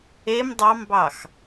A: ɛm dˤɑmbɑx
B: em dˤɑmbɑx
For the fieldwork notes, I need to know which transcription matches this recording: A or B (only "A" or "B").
B